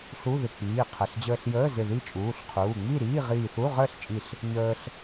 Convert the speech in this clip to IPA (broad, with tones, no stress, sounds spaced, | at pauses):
ɬ u˧˥˧ ð ɪ˧˩ k͡p iː˩˧˩ qʰ ə˩˧˩ ɬ d͡ʑ əː˧ ɬ j əː˧˥˧ z ɪ˧˩ ð i˥˨ t͡ʃʼ uː˩˧˩ ɬ qʰ uː˩˧˩ ŋ͡m i˥˨ ɾ iː˧˥˧ ʁ iː˧˩ θ u˧˥˧ ʁ əː˥˨ ɬ t͡ʃʼ i˧˩ ɬ | ɲ əː˧ ɬ